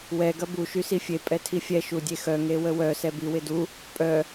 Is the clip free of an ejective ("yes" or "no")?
no